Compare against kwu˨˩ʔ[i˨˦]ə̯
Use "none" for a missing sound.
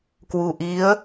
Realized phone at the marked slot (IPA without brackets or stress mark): i˨˦